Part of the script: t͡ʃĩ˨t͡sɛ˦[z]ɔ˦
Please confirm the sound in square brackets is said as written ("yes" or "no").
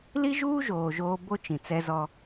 yes